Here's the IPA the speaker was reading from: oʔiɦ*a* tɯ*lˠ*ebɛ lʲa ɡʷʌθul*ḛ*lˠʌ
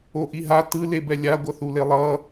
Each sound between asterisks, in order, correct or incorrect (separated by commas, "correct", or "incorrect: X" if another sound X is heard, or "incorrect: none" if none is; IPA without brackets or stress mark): correct, incorrect: l, incorrect: e